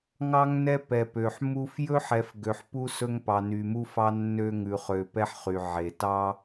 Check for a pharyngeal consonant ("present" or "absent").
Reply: present